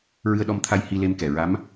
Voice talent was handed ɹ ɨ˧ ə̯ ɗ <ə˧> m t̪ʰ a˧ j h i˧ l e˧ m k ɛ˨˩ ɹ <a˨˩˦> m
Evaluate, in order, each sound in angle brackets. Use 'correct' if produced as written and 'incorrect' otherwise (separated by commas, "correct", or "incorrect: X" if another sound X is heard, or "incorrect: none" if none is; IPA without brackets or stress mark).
incorrect: ɔ˧, incorrect: a˧˥